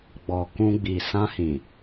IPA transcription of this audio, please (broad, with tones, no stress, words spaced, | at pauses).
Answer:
ɡ͡bɔ˨ kũ˧ɡ͡bi˨ sã˧hĩ˨